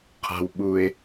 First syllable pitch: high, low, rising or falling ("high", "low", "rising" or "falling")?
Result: low